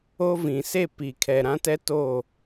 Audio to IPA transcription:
o˦ v ĩ˨ s e˦˨ p i˨ kʰ ɛ˨ ɾ ã˦ t ɛ˦ t o˦˨

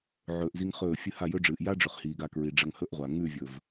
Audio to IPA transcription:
ʕ ɵː˧ ʔ z i˦ ŋ χ ɵː˦˨ fʲ ɨ˦ h a˦˨ j ɵ˦ ɖ͡ʐ ɨː˨ ʔ j a˦ ɖ͡ʐ ɵ˨ χ h iː˨ ɡ a˧ k ɹ i˨ ɖ͡ʐ ɐ˧ ŋ h ɵ˦ ʔ ʁʷ a˨ ŋ ʉ˦˨ vʲ ɵ˨ v

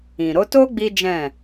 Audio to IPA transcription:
ĩ˨ ɾ o˨˦ t o˦ ɡ͡b i˦ d͡ʒ ɛ̃˦˨

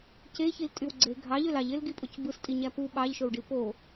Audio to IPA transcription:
c e ç i l tʼ y w ɡ͡ǀ e ɡʱ ɑ ʎ ø l ɑ ʎ e l ɡ i pʼ o c b ɯ s tʼ i ɲ æ p u ɓ ɑ ʎ ʃ o w ɖ i p o

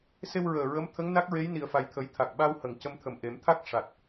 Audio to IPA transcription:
s e˧ w ɹ əː˨˩ ɹ ə˧˥ m t̪ʰ ə˧˥ ŋ n a˦˥ k̚ ɹ e˧˥ j n i˨˩˨ ə̯ f a˨˩ j t̪ʰ ə˨˩˦ j t̪ʰ a˨˩ k̚ ɓ a˧ w h ə˨˩˨ ŋ c ə˧ m t̪ʰ ə˨˩ m ʔ e˨˩˦ m t̪ʰ a˦˥ k̚ ʂ a˨˩ t̚

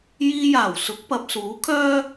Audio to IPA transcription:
j iː˧ j aː˨˩ w s ʊ˨˥ k̚ p ɐ˨ p̚ s uː˨˥ kʰ œː˥

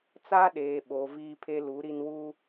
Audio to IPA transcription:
t͡s a˦ ɗ eː˨ ɓ o˨ v iː˦ pʰ e˦ l u˨˦ ɾ i˦ n w uː˦

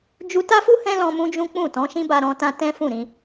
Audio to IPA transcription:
d͡ʒ u˧ t a˦ f u˦ h ɛ̃˦ l ɔ̃˧ m ũ˦ d͡ʒ ũ˦ k͡p ũ˦˨ t ɔ̃˨˦ ʃ ĩ˦ b a˧ ɾ ɔ̃˧ t ã˧ t ɛ̃˦ f ũ˦˨ ɾ ĩ˧

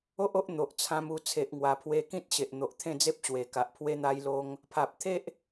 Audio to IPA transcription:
o˦ ʔ o˦ ʔ n̪ o˨ ʔ t͡sʰ ã˧ m u˧ t͡sʰ e˨ ʔ ŋ w a˨˩ pʰ w e˧ k ĩ˦ t̚ ɕ e˨ ʔ n̪ o˨ ʔ t̪ʰ ẽ˥˧ d͡z e˦ p̚ ɕ w e˨˩ k a˨ ʔ pʰ w e˧ n̪ a˧ j l o˧ ŋ | pʰ a˨ p̚ t̪ʰ e˦ ʔ

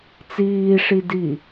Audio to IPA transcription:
t͡s iː ʂ i d iː

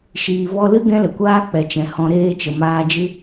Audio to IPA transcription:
ʃ iː˨ v ɔ˧ l ɨ˦ ɡ ɛ̃˦ l ə˨ kʷ aː˦ k͡p ɛ˨ t͡ʃ ɛ̃˨ h ɔ̃˧ ɾ eː˧ t͡ʃ ə˨ m aː˧ d͡ʒ ɨ˦

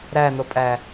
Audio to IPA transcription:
ɾ æ n̪ o pʼ æ

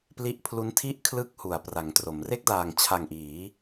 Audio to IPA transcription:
p l i˦˥ ʔ pʰ l u˦˥ n tʰ i˥˩ ʔ kʰ l ɯ˥˩ k̚ h u˩˦ a̯ p r a˩˦ ŋ t r o˩˦ m r e˥˩ k̚ d aː˨˩ ŋ t͡ɕʰ a˨˩ ŋ ʔ iː˩˦

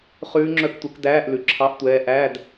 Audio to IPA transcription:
χ ʉː˧˥ ŋ͡ǁ œ˧˥ k tʷ ɛ˩˥ k d æː˧˥˧ ʔ l ʉ˨ ǁʰ ɑ˧˥˧ ʔ tʷ ɛː˧˥ ʔ æ˧˥˧ d

